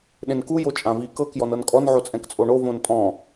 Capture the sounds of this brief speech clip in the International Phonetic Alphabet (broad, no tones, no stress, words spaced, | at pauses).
ɗẽnku jot͡ʃʼãvi kɤk jɔnɤnkʼɔn ʕot͡sʼɛ̃kt͡sʼoɳo võntʼɔ̃